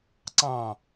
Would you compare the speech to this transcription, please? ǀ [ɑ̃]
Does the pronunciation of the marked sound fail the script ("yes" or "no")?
no